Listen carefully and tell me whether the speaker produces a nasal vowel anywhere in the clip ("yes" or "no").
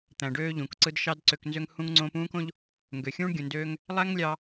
yes